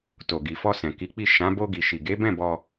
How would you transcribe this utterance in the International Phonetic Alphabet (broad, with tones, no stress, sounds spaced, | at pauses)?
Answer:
t o˨ ɡ i˨ f ɔ˧ s ɛ̃˨ k i˨˦ k͡p i˦˨ ʃ ã˨˦ b o˧ ɡ i˨ ʃ i˨ ɡ e˨˦ b ɛ̃˦˨ b ɔ˧